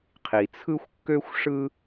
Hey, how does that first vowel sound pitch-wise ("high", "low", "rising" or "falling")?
low